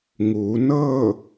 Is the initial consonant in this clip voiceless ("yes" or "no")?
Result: no